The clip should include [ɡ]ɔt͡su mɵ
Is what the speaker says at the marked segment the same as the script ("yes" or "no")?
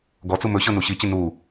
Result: yes